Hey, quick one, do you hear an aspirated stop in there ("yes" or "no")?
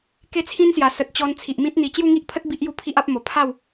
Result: yes